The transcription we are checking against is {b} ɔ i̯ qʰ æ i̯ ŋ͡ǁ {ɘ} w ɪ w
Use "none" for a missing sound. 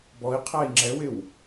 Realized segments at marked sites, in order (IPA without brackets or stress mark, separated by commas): b, ɛ